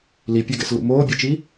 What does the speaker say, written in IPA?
l i pʲ a ɡ ɛ̰ s l ṵ m oː bʲ ɛ t͡ʃ i

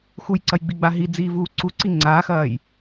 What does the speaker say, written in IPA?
x u j ǀ ɐ j ɡ͡b i ɡ͡b a ɦ i d͡z iː v uː ǀ u ǀ i ŋ͡ǀ a x ɐː j

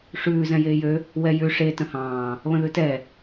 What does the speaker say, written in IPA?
ʂ ʉː z ɛ̃ j eː j ø | w ɛ j ʉ ʂ e t ə̃ h ɑ̃ː | β ə̃ ð ʉ t ɛ

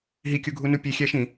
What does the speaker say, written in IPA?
ɦ i kʲ u ɡʱ u n u pʲ e xʲ æ ʃ ĩ

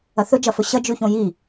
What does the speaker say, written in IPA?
ɐ θ ɵ d͡ʒ ɐ f ɵ ɕ ɐ d͡ʒ ʉ ç õ j i

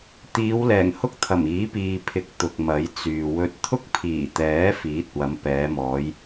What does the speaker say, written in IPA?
t̪ iː˨˧ w l ɛː˨˩ ŋ h ʊ˥ k̚ t̪ʰ ɐ˨˩ m iː˨˥ p iː˨ pʰ ɪ˨˥ k̚ t̪ ʊ˨ k̚ m ɐ˨˥ j t͡s yː˨ w ɵ˧ t̚ t̪ʰ ʊ˥ k̚ pʰ iː˨˩ t̪ ɛː˨˥ f iː˨˥ t̚ w ɐ˨˧ m p ɛː˨˧ m ɔː˨˧ j

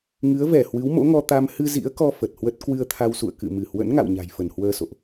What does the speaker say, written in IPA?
ŋ ɨ˨˦ ə̯ v ɛ˧˩ h w ɨ˨˦ w m o̰˧˥ ŋ ɔ˧ t̪ a˧ m h ɨ˧ z ḭ˧˥ ə̯ k ɔ˧ f ə˨˩ t̚ h w ə˦˥ t̚ k w ɨ˧ ə̯ t̪ʰ a˧ w s ṵ˧˨ ə̯ k ɨ̰˧˨ m ɨ˧˩ h w ə̰˧˥ n ŋ a̰˧˨ w ɲ a̤˨˩ j f ə˧˩ n h w əː˧ s o̰˧˨ ʔ

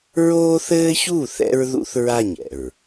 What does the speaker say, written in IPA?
ɹ oː˦ θ ɘː˦ ç u˦˨ θ ɛ̰˦ ɹ ð ṵ˦ θ ɹ a˦˨ ɲ ɛ̰˨ ɹ

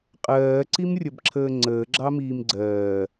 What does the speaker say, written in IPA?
qʼ ɜː ǀ i m rʲ ʌ b ǁʰ əː ŋ͡ǀ əː ɡ͡ǁ ɑ m iː m ɡ͡ǀ ɜː

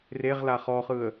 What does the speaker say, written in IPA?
r e ʁ l a χ ɔ χ ɯ ə̯

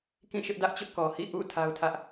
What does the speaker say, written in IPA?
k ĩ˦˨ ʃ ɪ˦ ʔ d ä˦ ʔ t͡ɕ ʊ˦ ʔ k ɔ˨ h ḭ˦˨ ʔ ṵ˦˨ tʰ a˦ ʊ̯ tʰ ä˦ ʔ

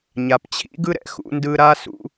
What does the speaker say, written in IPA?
ɲ a˩ p t͡ɕʰ ḭ˥ ɡ ɯ˥ ɾ ɛ̰˧ x ṵ˧ n d ɯ˧ ɾ a˥ s ṵ˧

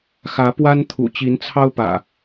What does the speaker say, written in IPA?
x ä˨˦ p w a˦ n t̪ʰ ṵ˨˩ t͡ɕ i˨˦ n t͡sʰ ɑ˦ ʊ̯ p ä̰˨˩

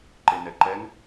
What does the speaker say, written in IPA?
ǃ e n ɛ ǃ ɛ ŋ

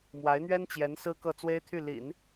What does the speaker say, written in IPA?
m w a˧˥ ɪ̯ n̪ ɥ ɛ˥ n t͡ɕ j ɛ˧˥ n s ɹ̩˥ k ɤ˥˩ t͡s w e˥ ɪ̯ t̪ʰ y˥˩ l ḭ˨˩˦ n

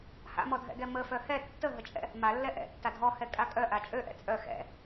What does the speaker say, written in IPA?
h a̰ m ɔ dʱ ɛ̰ ɡ ɛ m ə f œ h ɛ tː ə ɦ ə t͡ʃʼ ɛ̰ | m a lː ɛ ʔ ɛ̰ tː a dʱ ɔ h ɛ kʼ a kʼ œ ʔ a t͡ʃʼ ø ʔ ɛ̰ t͡sʼ œ x ɛ̰

